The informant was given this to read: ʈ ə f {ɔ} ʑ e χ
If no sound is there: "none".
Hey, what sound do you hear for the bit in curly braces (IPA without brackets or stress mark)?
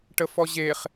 ɔ